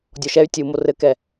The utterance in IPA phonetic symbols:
dʲ ɔ ʃ ɛ y̯ tʲ u m o r ɘ k ɛ

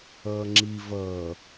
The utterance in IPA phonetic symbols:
ʌː ŋ͡ǁ i v ʌː

